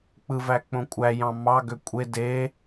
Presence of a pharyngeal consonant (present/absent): absent